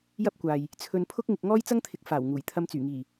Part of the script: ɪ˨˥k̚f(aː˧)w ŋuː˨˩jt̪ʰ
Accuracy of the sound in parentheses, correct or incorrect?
incorrect